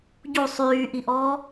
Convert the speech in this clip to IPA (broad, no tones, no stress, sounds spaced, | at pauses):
ɟ u sˤ yː ʔ i ʔ ɔː